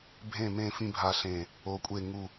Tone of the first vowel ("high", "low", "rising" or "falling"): falling